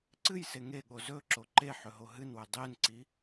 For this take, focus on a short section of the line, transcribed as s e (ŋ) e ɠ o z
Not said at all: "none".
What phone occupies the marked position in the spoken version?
ŋ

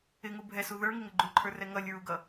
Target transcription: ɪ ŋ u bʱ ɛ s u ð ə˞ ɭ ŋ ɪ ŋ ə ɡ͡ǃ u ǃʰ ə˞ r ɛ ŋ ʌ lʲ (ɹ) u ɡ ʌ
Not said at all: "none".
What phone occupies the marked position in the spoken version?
ɹ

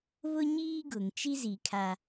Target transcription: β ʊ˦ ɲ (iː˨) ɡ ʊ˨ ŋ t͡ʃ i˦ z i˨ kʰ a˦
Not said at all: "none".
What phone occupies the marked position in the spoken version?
iː˦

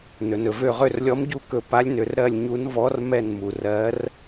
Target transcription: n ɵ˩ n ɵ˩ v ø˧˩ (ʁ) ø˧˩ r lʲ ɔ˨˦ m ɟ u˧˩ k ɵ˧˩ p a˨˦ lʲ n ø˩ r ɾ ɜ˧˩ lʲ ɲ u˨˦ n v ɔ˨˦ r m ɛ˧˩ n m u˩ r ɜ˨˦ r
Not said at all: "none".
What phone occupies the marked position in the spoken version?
ʁ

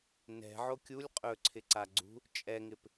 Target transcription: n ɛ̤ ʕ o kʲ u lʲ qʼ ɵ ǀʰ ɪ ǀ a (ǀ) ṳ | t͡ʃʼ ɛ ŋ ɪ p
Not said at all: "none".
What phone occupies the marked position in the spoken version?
ɡ͡ǀ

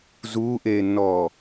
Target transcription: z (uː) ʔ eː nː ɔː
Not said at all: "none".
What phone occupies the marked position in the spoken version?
uː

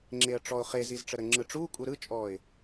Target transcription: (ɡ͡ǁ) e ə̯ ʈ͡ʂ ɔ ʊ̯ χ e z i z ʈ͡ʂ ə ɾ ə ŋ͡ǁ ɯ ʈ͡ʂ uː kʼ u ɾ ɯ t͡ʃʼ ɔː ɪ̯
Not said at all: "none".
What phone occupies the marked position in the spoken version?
ŋ͡ǁ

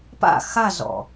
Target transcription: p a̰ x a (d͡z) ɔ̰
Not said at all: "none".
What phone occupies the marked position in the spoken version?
z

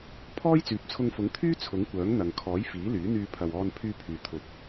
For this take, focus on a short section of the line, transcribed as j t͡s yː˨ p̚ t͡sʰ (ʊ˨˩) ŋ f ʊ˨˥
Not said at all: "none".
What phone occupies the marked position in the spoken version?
ʊ˧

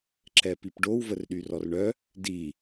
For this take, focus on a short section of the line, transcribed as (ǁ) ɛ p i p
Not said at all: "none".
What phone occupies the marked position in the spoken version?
ǁ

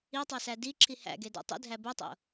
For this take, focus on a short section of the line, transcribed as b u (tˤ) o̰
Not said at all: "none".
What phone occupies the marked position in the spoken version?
tˤ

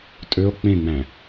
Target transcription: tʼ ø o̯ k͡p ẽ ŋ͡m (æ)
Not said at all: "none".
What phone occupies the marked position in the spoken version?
æ̃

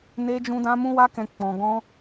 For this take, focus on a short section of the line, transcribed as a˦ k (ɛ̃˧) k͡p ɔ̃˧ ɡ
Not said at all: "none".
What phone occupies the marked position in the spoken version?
ɛ̃˧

